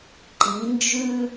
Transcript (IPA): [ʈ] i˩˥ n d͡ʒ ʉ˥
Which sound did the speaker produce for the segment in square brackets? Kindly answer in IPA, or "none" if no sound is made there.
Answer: ǃ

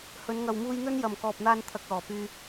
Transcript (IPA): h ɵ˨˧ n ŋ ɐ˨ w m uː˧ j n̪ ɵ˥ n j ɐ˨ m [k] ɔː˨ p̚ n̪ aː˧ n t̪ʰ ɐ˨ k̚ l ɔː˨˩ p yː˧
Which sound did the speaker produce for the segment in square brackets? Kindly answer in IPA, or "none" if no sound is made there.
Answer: k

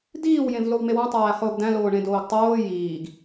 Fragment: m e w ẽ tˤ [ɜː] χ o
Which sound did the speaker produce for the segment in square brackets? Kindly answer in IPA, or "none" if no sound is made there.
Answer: æː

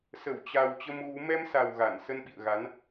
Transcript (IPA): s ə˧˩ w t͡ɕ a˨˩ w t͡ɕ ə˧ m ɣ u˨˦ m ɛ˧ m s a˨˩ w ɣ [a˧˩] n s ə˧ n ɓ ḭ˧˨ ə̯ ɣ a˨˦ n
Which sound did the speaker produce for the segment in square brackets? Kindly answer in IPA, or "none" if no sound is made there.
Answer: a˧˩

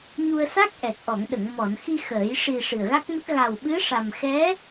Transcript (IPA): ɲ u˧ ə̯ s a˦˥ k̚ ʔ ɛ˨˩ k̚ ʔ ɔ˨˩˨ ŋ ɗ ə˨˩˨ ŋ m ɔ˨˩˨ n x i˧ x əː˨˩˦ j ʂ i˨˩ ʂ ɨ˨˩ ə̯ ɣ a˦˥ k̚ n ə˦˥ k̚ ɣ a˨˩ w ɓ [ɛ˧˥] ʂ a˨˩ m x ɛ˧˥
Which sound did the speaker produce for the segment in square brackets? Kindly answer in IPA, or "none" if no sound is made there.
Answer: ɨ˧˥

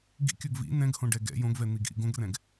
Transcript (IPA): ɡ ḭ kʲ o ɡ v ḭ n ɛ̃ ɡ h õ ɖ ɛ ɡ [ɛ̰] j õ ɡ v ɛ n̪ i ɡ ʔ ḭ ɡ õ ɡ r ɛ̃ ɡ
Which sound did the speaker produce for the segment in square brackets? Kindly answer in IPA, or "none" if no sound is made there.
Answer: ɛ̰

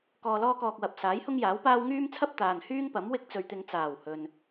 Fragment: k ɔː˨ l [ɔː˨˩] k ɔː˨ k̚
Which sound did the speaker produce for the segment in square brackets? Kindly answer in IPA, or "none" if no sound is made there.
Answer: ɔː˧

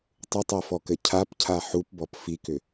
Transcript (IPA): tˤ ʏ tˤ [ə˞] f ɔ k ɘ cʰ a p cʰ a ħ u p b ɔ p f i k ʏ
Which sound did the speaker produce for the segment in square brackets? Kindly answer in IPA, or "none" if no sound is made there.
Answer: ɜ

